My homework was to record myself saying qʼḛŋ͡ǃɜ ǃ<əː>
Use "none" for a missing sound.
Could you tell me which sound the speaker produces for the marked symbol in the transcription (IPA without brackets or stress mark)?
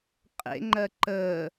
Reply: əː